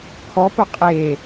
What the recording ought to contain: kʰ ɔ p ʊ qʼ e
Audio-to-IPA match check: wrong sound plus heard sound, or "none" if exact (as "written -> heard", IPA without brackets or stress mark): none